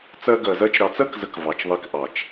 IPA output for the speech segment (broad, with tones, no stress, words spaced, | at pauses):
t͡sɜ˧ɡɜ˨zɜ˧t͡ʃ ɾɑ˨t͡sɜ˦kzə˨k vɑ˨t͡ʃðˤi˧k ʔɑ˨t͡ʃ